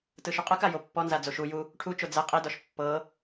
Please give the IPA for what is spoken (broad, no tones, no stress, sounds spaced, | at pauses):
t ɯ ʃ u qʼ ɯ k a j o pː ɔ n z a d͡z o ʃ u j u | ʈʰ u t͡ʃ o d͡z ɛ qʼ i d ɔ ʃ pː ɤ